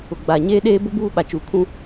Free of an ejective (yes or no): yes